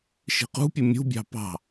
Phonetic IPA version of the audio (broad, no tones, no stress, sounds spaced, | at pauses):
ʃ i̤ q ṳ pʲ ɯ mʲ ṳ bʲ ɑ̤ p ɑ̤